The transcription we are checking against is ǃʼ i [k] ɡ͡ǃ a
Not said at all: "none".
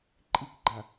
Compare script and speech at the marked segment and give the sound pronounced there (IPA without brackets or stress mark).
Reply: k